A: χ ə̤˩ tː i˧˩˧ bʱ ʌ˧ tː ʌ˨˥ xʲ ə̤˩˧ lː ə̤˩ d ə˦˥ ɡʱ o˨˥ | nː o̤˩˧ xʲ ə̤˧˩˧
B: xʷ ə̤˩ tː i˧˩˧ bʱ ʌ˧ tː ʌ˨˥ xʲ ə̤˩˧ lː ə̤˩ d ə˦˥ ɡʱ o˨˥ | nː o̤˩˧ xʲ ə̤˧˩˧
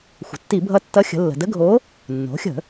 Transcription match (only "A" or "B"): B